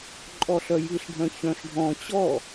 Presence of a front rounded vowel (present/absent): present